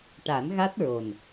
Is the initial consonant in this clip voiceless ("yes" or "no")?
yes